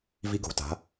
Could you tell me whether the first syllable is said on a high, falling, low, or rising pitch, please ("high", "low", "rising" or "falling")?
high